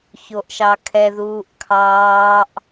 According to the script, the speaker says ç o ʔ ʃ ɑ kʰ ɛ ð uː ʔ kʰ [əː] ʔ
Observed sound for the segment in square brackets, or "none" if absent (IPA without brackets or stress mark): ɑː